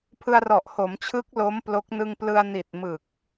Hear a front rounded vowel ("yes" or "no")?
no